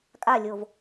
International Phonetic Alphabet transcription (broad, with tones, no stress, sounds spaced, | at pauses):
kʼ a˦˨ lʲ o˨ v